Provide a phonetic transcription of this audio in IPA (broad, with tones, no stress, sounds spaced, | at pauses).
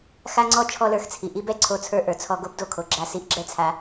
x a˦ ŋ͡ǀ ɔ˦ t͡ʃʰ ɔ˦ l ə˞˧ x t͡sʰ i˨ ʔ i˦ b ɛ˦ ǀʰ o˧ t͡sʰ ə˞˧ ʔ ə˞˨ t͡sʰ ɔ˧ ɡ o˦ b d o˧ kʰ o˨ ɡ͡ǁ a˧ s i˧ ʔ ɡ͡ǁ ɛ˦ t͡sʰ a˧